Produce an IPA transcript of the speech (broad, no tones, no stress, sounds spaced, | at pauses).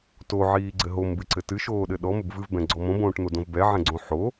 t o ʕ iː ɡ͡ǀ ɘ ɦ o m b ɨ ǀ ɘ t ɨ ʃ oː ɗ ɘ ɗ ɔ m ɘ b v ɨ v b ɛ̃ ɡ͡ǀ ɔ m õ b õː ʈ n̪ o d õ v b ɛ ʕ ɛ̃ ɡ͡ǀ õ ħ o